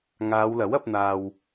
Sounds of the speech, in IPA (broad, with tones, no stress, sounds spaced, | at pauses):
ŋ aː˨˧ w l ɐ˨˥ w ɐ˨˥ p̚ n̪ aː˧ w